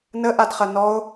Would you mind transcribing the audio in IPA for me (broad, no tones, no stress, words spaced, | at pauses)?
nəʔadχɐ nɔo̯